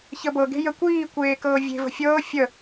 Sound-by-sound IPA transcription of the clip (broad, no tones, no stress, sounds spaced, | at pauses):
ç ə b ɤ ɡ e̤ j ə kʷ iː kʷ eː k ɤː vʲ e̤ v ə̤ fʲ ɤː fʲ ə